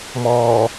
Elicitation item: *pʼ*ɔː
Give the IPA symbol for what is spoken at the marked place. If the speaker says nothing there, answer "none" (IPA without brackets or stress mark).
m